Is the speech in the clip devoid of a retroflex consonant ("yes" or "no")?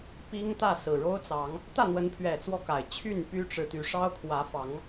no